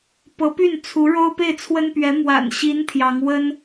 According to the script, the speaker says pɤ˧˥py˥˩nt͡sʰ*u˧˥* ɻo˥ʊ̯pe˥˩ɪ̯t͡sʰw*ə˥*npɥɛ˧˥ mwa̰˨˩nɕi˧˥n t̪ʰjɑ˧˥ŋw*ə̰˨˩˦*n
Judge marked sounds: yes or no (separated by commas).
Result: yes, yes, no